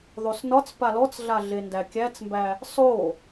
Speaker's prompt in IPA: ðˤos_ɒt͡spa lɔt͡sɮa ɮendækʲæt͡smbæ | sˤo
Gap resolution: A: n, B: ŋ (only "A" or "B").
A